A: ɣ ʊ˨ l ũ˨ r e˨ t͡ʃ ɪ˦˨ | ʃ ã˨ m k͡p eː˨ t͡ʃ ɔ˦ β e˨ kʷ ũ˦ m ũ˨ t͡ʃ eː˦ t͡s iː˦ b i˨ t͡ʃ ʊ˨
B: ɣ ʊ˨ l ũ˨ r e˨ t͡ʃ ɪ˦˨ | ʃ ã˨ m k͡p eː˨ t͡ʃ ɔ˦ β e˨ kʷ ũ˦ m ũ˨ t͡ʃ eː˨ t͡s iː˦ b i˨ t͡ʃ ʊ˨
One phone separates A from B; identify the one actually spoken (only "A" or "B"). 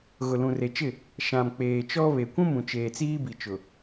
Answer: B